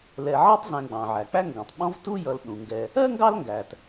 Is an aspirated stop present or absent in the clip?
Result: absent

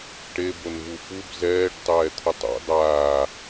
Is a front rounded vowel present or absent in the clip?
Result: absent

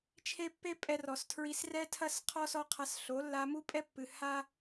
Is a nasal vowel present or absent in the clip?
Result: absent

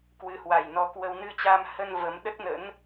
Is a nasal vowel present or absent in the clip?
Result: absent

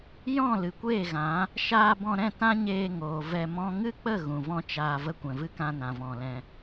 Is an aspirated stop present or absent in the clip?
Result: absent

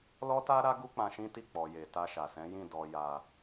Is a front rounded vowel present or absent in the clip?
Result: absent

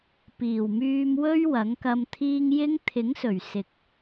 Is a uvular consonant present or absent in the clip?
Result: absent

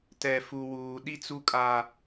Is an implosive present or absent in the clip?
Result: present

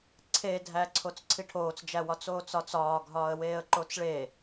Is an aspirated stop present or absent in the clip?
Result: present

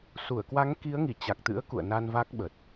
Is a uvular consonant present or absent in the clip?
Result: absent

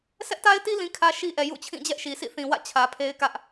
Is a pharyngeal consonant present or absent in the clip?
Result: absent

